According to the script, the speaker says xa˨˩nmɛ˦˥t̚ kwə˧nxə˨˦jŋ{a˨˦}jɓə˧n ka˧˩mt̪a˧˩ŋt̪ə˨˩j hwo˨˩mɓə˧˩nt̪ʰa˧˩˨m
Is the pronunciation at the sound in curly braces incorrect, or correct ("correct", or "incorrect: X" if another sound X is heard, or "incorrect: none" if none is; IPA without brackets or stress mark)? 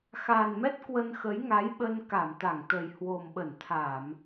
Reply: correct